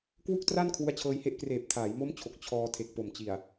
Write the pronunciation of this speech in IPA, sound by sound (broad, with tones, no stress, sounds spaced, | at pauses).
k w u˥˩ k̚ t r a˥˩ n kʰ w u˦˥ a̯ t͡ɕʰ ɤː˧ j h e˦˥ ʔ k r eː˨˩ p̚ tʰ aː˩˦ j m o˦˥ m t͡ɕʰ o˨˩ k̚ t͡ɕʰ ɔː˧ tʰ e˨˩ k̚ p o˨˩ m t͡ɕ i˨˩ a̯